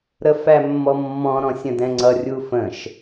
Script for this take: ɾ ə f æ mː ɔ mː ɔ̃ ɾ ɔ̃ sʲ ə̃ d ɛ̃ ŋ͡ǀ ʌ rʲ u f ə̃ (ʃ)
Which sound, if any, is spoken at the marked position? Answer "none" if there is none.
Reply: ʃ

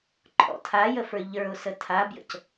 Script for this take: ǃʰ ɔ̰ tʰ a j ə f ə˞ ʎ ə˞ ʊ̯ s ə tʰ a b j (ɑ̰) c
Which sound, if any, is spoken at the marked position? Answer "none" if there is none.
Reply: ə̰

